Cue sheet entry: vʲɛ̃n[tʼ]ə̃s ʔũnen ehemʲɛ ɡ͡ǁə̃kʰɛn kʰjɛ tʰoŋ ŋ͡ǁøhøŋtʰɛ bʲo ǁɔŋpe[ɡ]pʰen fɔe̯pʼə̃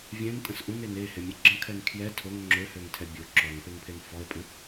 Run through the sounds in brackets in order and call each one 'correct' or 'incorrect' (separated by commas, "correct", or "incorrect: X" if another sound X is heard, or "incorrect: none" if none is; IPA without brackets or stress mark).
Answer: correct, incorrect: ŋ